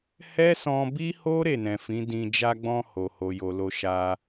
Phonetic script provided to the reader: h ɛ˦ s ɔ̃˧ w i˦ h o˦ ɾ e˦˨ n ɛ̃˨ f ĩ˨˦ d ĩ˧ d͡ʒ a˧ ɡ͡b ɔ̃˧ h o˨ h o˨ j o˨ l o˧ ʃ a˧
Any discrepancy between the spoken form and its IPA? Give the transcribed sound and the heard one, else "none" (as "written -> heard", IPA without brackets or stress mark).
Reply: w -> b